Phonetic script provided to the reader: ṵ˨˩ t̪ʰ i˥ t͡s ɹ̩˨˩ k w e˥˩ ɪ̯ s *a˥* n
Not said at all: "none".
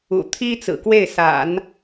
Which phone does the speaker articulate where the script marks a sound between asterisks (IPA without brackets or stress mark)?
a̰˨˩˦